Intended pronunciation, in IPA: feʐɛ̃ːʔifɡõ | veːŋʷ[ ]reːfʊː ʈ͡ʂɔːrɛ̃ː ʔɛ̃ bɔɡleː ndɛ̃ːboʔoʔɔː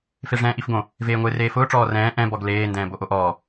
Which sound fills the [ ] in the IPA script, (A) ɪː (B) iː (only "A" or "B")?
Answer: A